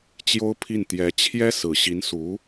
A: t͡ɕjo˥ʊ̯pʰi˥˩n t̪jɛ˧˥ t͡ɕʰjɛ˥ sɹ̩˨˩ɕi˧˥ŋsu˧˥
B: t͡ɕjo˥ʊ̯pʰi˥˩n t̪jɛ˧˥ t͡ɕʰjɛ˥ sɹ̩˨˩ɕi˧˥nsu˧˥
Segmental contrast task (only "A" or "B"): B